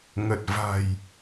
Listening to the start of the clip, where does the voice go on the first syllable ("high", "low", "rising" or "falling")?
low